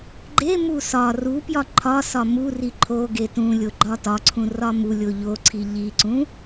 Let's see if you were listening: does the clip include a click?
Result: yes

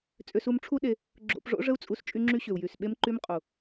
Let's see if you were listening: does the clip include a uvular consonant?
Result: yes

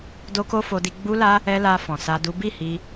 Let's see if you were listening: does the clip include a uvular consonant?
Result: no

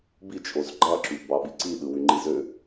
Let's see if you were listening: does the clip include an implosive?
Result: yes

